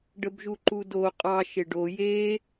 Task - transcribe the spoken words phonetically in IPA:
ɖ ə b ʒ u ǃ u d o qʼ ɑ ʃ e ɖ o j e

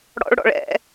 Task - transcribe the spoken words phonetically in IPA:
ɽ ɔ̰ ɭ ɽ ɔ̰ ɭ ɛ̰

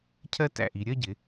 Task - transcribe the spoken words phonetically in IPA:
cʰ ɜ˥ t æ̰˧˩ ʔ i˩˧ ɾʲ ɜ˥˧ ɟ ɪ˩˧

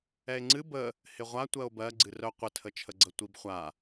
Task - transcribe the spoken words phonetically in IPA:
ɛ e̯ ŋ͡ǀ ɨ b ə | h ɪ ʁʷ a tʷ ɜ o̯ b ɜ ɡ͡ǀ ɨ r œ qʷ ɪ tʰ ə t͡ʃʰ ə ɡ͡ǀ ə tʷ i b χʷ a

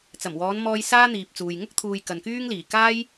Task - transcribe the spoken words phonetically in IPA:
t͡s ɐ˨˩ m w ɔː˨˧ n m ɔː˧ j s aː˥ n̪ iː˨ p̚ t͡s uː˨ j ŋ ʊ˥ k̚ t̪ʰ uː˨ j k ɐ˨ n k yː˥ ŋ l iː˨˩ k aː˥ j

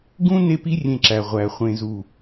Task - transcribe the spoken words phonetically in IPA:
ɡ ũ˦ n e˦ p i˦ rʲ ẽ˧ ǁ æ˨ ʁʷ æ˨ χʷ ẽ˨ z u˨

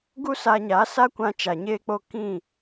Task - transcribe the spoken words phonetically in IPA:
ɡ u˦ s aː˧ ɲ a˨˦ s a˦ kʷ ã˧ t͡ʃ a˨ ɲ eː˧ k͡p o˧ k ĩ˦˨

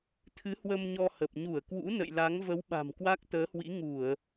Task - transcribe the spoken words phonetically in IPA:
t̪ʰ ɨ˨˦ h w ə˧ m ɲ ɔ˧ h ə˨˩ p̚ ɲ u˧˩ ə̯ k w ṵ˧˥ n ə̰˧˨ j l a˨˦ ŋ v ə˨˦ w ɓ a̤˨˩ m k w a˦˥ k̚ t̪ əː˨˦ h w ḭ˧˥ ŋ u˧˩˨ ə̯

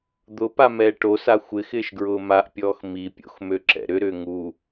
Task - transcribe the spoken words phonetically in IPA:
d̪ ʊ p a m ɛː ʈ o s a xʷ ɪ x ɪː ʃ ɡ ɹ ʊː m a ʔ pʲ ɔː x m i pʲ o̰ x m ø ǁ ɛ̰ ɾ ʏ ɾ ʏː ŋ u

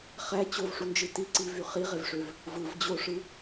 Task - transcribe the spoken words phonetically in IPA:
χ æ t͡ɕ o v ʂ u n d͡ʒ ɯ t i ǀ i v y χ i ʁ e v ʂ ø v | v ɯ v d͡ʑ o ʂ ɯ

